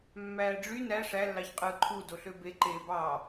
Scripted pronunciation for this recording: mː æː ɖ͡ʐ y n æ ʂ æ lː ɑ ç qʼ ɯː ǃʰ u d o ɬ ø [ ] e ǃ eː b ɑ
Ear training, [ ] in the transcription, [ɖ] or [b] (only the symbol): b